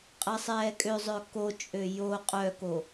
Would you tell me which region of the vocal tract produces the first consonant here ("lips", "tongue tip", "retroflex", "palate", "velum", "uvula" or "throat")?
uvula